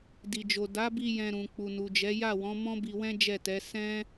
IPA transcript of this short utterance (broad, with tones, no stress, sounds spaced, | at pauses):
d i˨ d͡ʒ o˨ d a˨˦ b i˧ j ɛ̃˧ ɾ ũ˨ k͡p u˨ n u˨ d͡ʒ ɛ˨˦ j a˦˨ w ɔ̃˨˦ m ɔ̃˦ b i˧ w ɛ̃˦ d͡ʒ ɛ˦˨ t ɛ˨˦ s ɛ̃˦